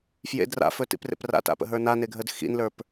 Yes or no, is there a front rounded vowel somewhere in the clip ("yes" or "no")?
no